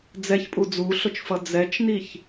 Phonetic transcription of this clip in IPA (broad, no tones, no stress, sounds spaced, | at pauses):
d͡z ɛ ç pʼ u d͡z u ɬ o t͡ʃ f ʌ d͡z ɛ t͡ʃ n i ç